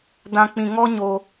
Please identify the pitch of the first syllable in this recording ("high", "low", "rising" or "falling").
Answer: high